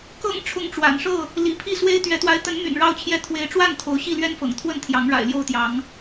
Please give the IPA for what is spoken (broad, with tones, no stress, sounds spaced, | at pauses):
k ɤ̰˨˩ ŋ ʈ͡ʂʰ ʊ˨˦ ŋ ʈ͡ʂ w a̰˨˩ n ʂ ɤ˥˨ | l ḭ˨˩ pʰ i˥˨ s w e˦ ɪ̯ t̪ ɥ ɛ˨˦ t̪ w a˨˦ ɪ̯ t̪ ə˨˦ n m y̰˨˩ n ɻ ɑ˥˨ ʊ̯ t͡ɕʰ j ɛ˥˨ t̪ʰ w e˨˦ ɪ̯ ʈ͡ʂ w a˥˨ n t̪ʰ o˨˦ ʊ̯ ɕ i˥˨ l ɥ ɛ˦ n f ɤ̰˨˩ ŋ t̪ʰ w ə˥˨ n t̪ʰ j ɑ˨˦ ŋ ɻ a̰˨˩ ɪ̯ l j o˥˨ ʊ̯ t̪ j ɑ˨˦ ŋ